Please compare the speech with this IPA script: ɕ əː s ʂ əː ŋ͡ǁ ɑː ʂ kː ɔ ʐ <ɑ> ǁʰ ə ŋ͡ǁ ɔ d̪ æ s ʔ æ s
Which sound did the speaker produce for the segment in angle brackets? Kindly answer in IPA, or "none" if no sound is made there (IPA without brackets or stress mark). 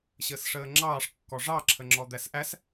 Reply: ɑ